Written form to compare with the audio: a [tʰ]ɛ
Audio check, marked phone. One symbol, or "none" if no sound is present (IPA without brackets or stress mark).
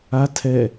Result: tʰ